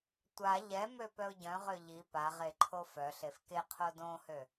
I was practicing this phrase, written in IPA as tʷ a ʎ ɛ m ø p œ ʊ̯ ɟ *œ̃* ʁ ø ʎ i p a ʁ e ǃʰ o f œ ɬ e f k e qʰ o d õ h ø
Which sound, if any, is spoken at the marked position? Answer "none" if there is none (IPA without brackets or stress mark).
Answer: œ̃